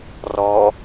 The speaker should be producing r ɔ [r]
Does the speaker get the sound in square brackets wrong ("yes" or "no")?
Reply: yes